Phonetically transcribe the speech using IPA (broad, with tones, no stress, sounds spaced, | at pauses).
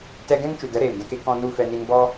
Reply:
t ɛ˧ ɡ ɛ̃˦ ŋ t͡ʃ u˨ d ə˨˦ ɾ eː˨ m d ɛ̃˧ k e˦ k ɔ̃˦ n u˦ f ɛ˧ n i˧ n b ɔ˦